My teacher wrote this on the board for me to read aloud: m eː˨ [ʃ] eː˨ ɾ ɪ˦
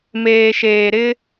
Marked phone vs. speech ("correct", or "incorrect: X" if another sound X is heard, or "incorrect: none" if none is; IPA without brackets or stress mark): correct